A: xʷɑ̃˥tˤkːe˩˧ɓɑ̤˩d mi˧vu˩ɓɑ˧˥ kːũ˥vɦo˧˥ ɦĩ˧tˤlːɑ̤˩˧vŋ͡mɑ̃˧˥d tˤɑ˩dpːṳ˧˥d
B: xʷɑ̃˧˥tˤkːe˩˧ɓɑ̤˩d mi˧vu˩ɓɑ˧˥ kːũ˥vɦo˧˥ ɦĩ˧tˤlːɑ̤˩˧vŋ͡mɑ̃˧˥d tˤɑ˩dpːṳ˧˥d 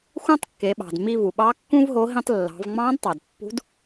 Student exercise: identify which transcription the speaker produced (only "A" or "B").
A